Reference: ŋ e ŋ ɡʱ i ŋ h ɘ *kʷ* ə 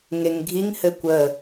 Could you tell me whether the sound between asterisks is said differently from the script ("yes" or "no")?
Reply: no